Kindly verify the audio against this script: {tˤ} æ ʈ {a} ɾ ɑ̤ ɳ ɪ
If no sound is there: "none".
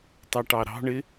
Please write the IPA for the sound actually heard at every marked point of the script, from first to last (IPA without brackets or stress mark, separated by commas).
tˤ, ɑ